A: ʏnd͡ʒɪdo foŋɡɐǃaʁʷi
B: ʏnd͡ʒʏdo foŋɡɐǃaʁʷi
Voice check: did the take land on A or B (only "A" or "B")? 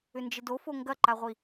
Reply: A